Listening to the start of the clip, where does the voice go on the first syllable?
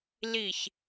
falling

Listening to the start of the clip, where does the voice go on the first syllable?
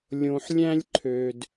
low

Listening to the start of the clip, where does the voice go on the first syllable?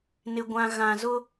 low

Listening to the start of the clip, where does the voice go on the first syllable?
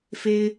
high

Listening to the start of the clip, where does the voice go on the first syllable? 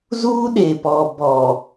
high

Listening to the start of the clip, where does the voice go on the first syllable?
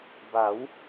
rising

